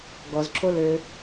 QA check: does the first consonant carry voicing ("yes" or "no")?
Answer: yes